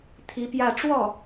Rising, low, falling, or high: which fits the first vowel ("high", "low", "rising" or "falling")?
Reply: rising